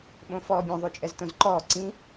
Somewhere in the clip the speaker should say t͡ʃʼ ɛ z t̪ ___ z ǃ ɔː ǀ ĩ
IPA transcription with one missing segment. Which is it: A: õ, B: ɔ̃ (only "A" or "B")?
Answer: A